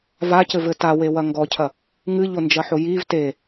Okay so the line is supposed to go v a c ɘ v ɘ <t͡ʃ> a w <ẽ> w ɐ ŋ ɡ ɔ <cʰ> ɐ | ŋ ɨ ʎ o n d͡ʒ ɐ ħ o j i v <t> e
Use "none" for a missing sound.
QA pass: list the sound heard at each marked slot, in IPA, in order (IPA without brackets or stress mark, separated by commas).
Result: t, e, cʰ, t